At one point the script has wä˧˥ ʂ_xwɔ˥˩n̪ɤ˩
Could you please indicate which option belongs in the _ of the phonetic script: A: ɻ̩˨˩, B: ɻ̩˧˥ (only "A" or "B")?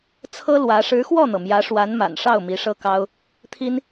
B